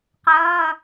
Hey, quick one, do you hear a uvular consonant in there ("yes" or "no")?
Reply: yes